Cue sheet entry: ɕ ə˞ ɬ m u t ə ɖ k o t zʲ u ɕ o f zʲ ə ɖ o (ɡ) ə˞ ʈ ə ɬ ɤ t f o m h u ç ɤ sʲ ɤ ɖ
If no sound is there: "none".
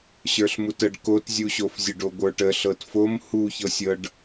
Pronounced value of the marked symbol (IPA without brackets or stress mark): ɡʷ